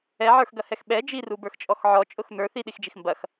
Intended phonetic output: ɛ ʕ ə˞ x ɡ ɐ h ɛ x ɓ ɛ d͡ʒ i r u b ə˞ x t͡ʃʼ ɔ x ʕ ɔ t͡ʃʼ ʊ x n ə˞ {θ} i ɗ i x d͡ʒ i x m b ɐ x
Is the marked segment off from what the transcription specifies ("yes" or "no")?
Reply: no